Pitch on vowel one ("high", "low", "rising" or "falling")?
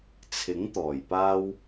rising